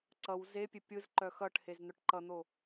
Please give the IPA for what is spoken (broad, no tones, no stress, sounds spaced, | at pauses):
ǀ ʌ w z e pʲ e pʲ ɯ z ǃ œ x ʌ ʈ h e z n̪ œ ʈ ǃ ʌ n̪ o